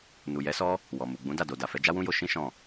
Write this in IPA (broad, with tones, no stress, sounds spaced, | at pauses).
n u˨ j ɛ˨˦ s ɔ˦ | w ɔ˨ m u˨ ɡ͡b ũ˨˦ d a˦˨ d o˨ d a˨ f ɛ˨˦ d͡ʒ a˦ w ũ˦ j o˧ ʃ ĩ˦ ʃ ɔ̃˦˨